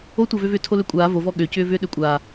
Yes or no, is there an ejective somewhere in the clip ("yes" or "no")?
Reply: yes